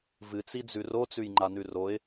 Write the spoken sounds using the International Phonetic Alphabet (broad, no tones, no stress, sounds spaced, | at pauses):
v ɨ t͡s i d͡z ʉ r o t͡s ʉ j ŋ͡ǃ a n ʉ r o ɪ̯